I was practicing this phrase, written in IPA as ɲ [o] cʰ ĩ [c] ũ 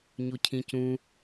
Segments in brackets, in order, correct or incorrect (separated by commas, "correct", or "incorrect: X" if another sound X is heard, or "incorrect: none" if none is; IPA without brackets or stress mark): correct, correct